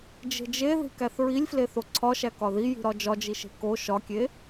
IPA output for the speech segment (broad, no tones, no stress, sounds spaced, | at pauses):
d͡ʒ e̤ d͡ʒ e ð i̤ k æ θ ɹ i lʲ f l e θ o ǀʰ ɒ ʃ æ k ɒ ð i j i̤ ɾ ɒ d͡ʒ ɒ d͡ʒ i ʃ e̤ k o ʃ ɒ kʲ e